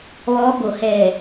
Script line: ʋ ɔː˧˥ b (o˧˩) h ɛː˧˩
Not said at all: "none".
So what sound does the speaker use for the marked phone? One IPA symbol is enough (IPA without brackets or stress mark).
o˧˩